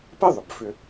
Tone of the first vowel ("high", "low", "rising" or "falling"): high